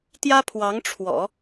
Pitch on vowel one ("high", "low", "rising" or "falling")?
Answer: high